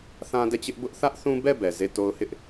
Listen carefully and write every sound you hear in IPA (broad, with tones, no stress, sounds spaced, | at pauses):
θ ã˦ d ɛ˦˨ t͡ɕ ɪ˦ ʔ b ʊ˦ ʔ θ ä˦ ʔ θ ũ˦ b ɛ˦˨ b ɛ˨ z e˦˨ t o˦ ʊ̯ h ɪ˦ ʔ